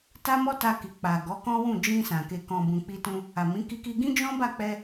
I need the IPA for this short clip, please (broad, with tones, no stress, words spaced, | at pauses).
ta˦mɔ˦ta˧ ki˨ k͡pa˨ɡɔ˨˦ kɔ̃˦wũ˦˨ d͡ʒĩ˧ sã˨ ke˨kɔ̃˨ bũ˨k͡pi˧tũ˧ | a˨mĩ˨˦ ki˦ki˦ ɡĩ˦d͡ʒɔ̃˦ba˦˨k͡pɛ˧